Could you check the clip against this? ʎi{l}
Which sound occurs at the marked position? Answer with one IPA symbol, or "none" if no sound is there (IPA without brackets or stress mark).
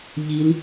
l